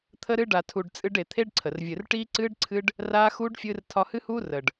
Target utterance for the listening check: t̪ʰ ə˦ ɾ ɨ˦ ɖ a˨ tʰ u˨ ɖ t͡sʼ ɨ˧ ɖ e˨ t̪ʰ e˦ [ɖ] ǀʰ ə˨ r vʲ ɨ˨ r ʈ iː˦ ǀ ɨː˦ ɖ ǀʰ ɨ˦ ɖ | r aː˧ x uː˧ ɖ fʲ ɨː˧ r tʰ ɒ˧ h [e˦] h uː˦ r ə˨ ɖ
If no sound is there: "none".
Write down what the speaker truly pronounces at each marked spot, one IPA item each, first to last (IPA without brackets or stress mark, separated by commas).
ɖ, ɨ˦